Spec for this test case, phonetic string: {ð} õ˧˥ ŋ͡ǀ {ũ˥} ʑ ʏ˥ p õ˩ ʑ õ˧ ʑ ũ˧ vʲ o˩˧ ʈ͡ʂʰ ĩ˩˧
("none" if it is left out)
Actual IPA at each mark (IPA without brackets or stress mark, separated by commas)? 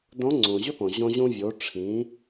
d, ũ˩